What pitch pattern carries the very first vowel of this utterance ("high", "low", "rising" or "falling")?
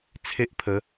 high